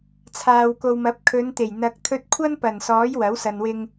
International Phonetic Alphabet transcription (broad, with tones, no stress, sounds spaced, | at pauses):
t͡sʰ aː˨ w k o˨ w m ɐ˨˥ p̚ kʰ ɵ˨˧ n t̪ e˨˩ j n̪ ɐ˨ k̚ t̪ʰ ɵ˧ t̚ kʷʰ ɐ˥ n p ɐ˨˩ n s ɔː˨˥ j w ɐ˨˥ w s ɐ˨ n w ɪ˧ ŋ